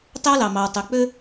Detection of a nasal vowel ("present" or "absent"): absent